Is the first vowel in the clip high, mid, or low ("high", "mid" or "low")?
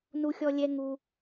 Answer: high